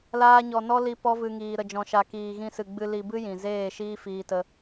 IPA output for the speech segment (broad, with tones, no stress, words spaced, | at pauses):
laː˧ɲɔ˨nɔ˦li˧ pɔ˦vɨ˧ŋiː˨ ɾə˨d͡ʒɔ̃˨ʃa˨ kiː˨ɣĩ˧sɨ˨ɡ͡bɨ˧ li˧bɨ˦ jĩ˨zeː˦˨ ʃiː˦fiː˧tə˧